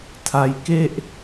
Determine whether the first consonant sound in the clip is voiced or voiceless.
voiceless